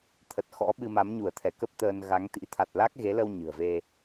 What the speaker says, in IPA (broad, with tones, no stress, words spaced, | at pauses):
t̪ʰə˨˩t̚xɔ̰˧˥ɓɨ˧ ma˨˦mɲu˧˩ə̯t̪ʰɛ˧˩kə˦˥p̚ t̪əː˧n ɣa˨˦ŋt̪ḭ˧˥ t̪ʰa˨˩t̚la˦˥k̚ɣe˨˦lə˧w ɲɨ̤˨˩ə̯ve˧